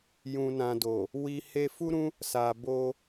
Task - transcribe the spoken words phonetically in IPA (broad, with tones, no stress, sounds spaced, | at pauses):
j ũ˨ n ã˨ d o˨ | w i˨ h e˧ f u˦ ɾ ũ˦ | s a˨ b o˧